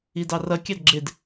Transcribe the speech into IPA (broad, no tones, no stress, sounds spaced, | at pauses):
i d ɑ r ʌ kʲ ɑ d ɡ͡ǁ ɪ d